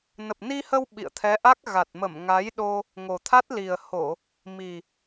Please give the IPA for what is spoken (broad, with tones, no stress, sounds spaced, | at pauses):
n ə˨˩ p̚ n i˧ h ə˧ w ɓ ḭ˧˨ ə̯ t̪ʰ ɛ˨˦ ʔ a˦˥ k̚ ɣ a˨˩ t̚ m ə˧˩ m ŋ a˨˦ j ɗ o˧ | ŋ o˨˩ t̪ʰ a˦˥ t̚ l i˨˩ ə̯ h o˧˩˨ | m i˨˩